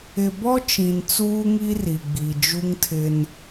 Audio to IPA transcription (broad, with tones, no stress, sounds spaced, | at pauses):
ɪ˨ b ɔ˦ t͡ʃ ĩ˨ n t͡s uː˦ ŋ i˦ r i˨ ɡ͡b i˨ d͡ʒ u˦ ŋ tʰ ɪ˦ n